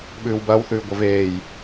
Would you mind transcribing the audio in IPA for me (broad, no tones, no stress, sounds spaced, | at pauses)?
ɓ ʉː w b ɐː w θ ʉː ɡʷ ɐ v eː j